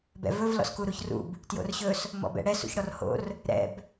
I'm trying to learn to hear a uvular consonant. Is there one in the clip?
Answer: no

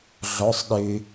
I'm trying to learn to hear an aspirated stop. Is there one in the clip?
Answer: no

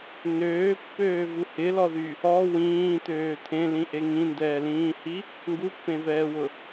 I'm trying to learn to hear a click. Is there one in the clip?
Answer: no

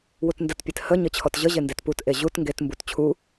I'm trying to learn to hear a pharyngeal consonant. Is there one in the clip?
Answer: no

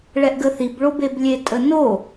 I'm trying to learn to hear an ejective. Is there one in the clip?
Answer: yes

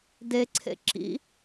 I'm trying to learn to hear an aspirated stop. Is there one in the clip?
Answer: yes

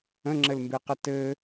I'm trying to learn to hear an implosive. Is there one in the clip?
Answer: no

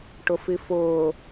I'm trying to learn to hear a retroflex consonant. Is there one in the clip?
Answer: yes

